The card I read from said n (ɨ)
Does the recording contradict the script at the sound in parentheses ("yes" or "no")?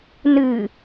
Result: no